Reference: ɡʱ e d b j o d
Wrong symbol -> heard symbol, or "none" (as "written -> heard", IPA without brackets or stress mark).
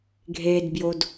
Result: none